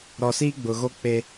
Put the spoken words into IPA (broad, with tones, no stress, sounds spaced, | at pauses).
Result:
ɾ ɔ˨ s i˦ ɡ͡b ʊ˨ ɣ o˦ k͡p e˦